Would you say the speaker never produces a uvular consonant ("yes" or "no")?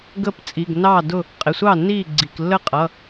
no